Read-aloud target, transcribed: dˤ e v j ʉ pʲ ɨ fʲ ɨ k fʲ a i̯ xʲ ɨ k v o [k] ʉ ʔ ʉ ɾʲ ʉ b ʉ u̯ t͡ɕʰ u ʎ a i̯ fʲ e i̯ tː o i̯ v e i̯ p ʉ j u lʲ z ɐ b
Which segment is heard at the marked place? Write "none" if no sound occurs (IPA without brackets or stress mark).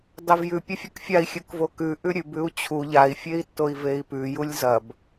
k